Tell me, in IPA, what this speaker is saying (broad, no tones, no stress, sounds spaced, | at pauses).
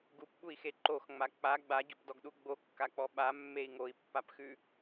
ɡ u p ɓ u i̯ x e ǃ o x ŋ͡m a k͡p a ɡ͡b a ɟ o p d ɔ ɡ ɗ u ɡ͡b o kː a k͡p ɔ ɓ a mː e i̯ ŋ o i̯ pː a p x ʉ